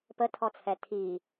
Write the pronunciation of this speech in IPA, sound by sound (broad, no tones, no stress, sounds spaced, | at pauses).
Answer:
p ə tʰ ɔ t͡sʰ ɛ tʰ i